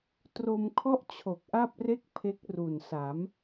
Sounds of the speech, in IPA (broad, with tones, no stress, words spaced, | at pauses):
tro˧mkʰɔ˥˩ʔt͡ɕʰo˨˩k̚ ʔa˥˩p̚re˥˩k̚ pʰe˦˥k̚ru˨˩nsa˩˦m